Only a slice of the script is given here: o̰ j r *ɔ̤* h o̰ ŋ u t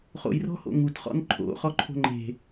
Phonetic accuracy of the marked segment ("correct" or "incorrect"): correct